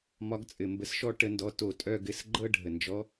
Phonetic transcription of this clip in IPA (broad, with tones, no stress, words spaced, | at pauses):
mɒ˨˦ɡt͡sʼɘ˩ mbə˨˦sʃɔ˦˨ʈə˧˩˧ndɔ˩˧˩ to˧˩˧tʼœ˦˨ ɡɘ˩˧˩sɡ͡ǃɤ˦˨ɖʱə˩ nd͡ʒɔ˨˦